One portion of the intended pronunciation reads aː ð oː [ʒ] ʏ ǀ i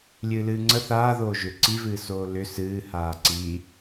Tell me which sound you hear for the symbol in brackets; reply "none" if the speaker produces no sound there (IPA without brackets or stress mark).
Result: ʒ